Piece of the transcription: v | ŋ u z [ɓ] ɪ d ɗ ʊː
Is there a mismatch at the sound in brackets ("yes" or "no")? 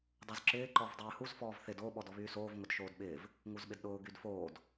no